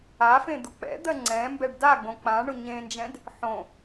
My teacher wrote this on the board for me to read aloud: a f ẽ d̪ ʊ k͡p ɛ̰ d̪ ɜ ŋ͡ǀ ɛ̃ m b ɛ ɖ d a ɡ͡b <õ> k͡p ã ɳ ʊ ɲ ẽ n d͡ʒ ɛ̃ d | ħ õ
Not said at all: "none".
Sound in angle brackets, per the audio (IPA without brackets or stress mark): õ